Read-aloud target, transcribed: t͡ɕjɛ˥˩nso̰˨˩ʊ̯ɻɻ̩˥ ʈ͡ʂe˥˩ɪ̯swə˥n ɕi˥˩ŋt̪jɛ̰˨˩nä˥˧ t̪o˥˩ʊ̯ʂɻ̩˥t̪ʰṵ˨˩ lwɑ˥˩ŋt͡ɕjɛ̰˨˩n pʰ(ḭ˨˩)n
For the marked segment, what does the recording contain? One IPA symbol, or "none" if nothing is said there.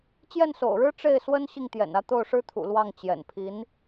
i˧˥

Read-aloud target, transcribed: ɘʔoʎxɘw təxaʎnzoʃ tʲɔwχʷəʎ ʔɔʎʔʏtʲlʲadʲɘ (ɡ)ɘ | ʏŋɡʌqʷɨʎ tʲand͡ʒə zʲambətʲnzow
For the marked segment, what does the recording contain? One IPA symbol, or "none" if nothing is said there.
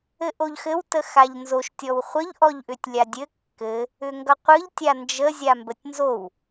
kː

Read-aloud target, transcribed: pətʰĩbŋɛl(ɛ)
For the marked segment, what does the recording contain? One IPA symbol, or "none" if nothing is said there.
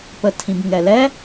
ɛ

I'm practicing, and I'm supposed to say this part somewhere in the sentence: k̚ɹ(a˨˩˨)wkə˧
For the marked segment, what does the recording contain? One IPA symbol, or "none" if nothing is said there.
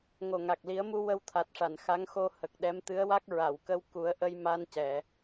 a˨˩˨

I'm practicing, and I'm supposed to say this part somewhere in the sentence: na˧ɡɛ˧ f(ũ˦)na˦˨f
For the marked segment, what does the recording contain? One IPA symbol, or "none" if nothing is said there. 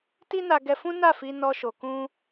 ũ˦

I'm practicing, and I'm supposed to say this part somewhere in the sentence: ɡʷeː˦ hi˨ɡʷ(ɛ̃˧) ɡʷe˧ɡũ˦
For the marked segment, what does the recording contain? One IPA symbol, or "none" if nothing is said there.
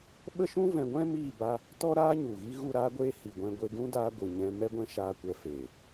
ɛ̃˧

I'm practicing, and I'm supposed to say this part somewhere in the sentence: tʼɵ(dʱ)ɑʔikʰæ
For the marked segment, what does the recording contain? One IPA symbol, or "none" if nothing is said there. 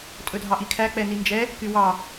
dʱ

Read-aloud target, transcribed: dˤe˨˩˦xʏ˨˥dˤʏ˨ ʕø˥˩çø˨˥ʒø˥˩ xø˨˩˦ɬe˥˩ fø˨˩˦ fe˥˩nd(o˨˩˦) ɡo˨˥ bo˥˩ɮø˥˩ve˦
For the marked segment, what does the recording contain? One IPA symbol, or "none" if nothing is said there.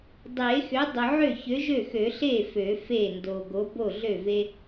o˨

